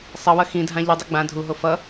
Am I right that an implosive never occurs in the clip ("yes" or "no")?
yes